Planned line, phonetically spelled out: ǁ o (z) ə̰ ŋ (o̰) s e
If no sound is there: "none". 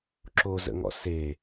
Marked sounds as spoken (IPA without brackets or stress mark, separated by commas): z, ɔ̰